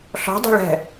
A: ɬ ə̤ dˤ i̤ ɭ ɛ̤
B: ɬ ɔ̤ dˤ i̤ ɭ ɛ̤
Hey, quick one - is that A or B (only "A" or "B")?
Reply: B